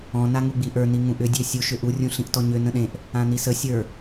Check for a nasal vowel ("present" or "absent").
present